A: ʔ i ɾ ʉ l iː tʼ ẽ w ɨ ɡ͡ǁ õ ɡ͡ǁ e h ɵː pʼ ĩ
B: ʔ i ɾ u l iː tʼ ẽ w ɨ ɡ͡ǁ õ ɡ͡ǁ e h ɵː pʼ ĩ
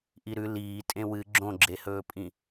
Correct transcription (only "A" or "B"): A